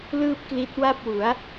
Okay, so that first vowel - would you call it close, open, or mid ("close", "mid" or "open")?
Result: close